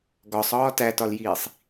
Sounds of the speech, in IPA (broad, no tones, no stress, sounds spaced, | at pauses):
ɡ ɒ sˤ ɒː t æ t ɒ l j iː sˤ